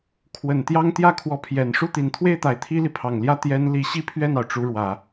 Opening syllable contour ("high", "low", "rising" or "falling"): low